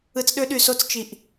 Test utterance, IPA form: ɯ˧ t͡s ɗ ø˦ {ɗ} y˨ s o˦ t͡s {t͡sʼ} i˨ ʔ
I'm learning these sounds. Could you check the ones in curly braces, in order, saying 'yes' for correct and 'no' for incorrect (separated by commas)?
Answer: yes, no